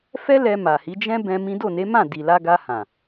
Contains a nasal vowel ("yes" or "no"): yes